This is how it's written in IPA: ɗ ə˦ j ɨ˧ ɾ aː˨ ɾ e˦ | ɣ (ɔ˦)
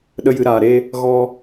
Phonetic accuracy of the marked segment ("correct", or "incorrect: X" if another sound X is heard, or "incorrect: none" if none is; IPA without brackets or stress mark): incorrect: ɔ˧